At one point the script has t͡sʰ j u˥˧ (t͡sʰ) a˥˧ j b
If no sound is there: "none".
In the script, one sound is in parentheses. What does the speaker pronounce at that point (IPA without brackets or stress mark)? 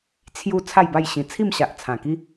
t͡sʰ